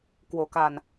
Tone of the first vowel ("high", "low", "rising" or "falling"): low